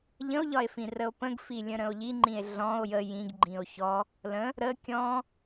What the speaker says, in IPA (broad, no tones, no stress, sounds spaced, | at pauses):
ʎ ə̃ o̯ ʎ ɒ e̯ f ĩ r ə o̯ p ə̃ ɡ f i lʲ ə̃ ɾ ə̃ o̯ ʎ i ŋ͡ǃ ĩ e̯ ɮ ɔ̃ o̯ j ə j ĩ ɡ ɡ͡ǃ ĩ o̯ ç ɔ | l ə̃ | ɾ ə kʲ ɔ̃